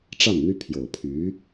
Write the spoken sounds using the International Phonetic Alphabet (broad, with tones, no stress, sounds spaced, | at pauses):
ʈ͡ʂ a˥˩ n n̪ y˥ pʰ j o˨˩ ʊ̯ pʰ y˧˥